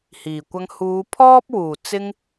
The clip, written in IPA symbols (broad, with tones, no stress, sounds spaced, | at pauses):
h iː˨˩ kʷ ɐ˧ ŋ h uː˨˧ pʰ ɔː˥ p̚ w uː˨˩ t͡s ɪ˧ ŋ